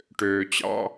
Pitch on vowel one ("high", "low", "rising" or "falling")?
low